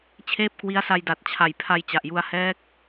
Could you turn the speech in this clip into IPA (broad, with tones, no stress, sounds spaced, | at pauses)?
t͡ɕʰ eː˥˩ p̚ k w i˦˥ a̯ s a˧ j d a˨˩ t̚ t͡ɕʰ a˨˩ j pʰ a˧ j t͡ɕ a˨˩ ʔ j u˧ a̯ h ɛː˦˥ k̚